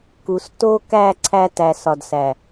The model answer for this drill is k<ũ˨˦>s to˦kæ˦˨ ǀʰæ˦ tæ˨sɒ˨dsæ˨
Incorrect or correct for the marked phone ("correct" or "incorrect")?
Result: incorrect